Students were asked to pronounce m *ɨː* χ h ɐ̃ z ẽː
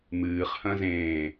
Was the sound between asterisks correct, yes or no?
yes